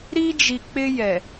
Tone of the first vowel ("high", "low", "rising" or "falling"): high